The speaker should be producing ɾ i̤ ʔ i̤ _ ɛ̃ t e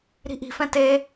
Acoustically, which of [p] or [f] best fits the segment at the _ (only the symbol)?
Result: f